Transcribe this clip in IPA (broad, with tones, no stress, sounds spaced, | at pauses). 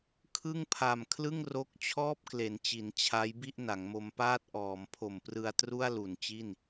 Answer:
kʰ ɯ˥˩ ŋ pʰ a˨˩ m kʰ l ɯ˥˩ ŋ r o˦˥ k̚ t͡ɕʰ ɔː˥˩ p̚ k l e˩˦ n t͡ɕ i˩˦ n t͡ɕʰ a˦˥ j b i˥˩ ʔ n a˩˦ ŋ m o˧ m p aː˥˩ t̚ ʔ ɔː˩˦ m pʰ o˨˩ m p r ɯ˧ a̯ t r u˥˩ a̯ l u˨˩ n t͡ɕ i˥˩ n